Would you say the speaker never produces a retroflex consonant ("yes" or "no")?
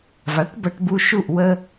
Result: no